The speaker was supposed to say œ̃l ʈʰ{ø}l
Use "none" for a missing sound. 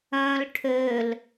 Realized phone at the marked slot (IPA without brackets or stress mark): ø